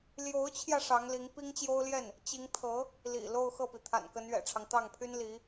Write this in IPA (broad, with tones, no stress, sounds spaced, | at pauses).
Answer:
l j o˧˥ ʊ̯ t͡ɕʰ j ä˧ ʂ ɑ˧˥ ŋ l i˧˥ ŋ p i˥ ŋ t͡ɕ j o˥ ʊ̯ l j ɛ˥˩ n | t͡ɕ i˧˥ ŋ t̪ʰ ɤ˧˥ | l ḭ˨˩ l o˥˧ ʊ̯ x ɤ˥˩ p i˩ t̪ʰ a̰˨˩ n k ə˧˥ n ɥ ɛ̰˨˩ ʈ͡ʂʰ ɑ˦ ŋ t̪ ɑ˥˩ ŋ pʰ y˥ n l i˧˥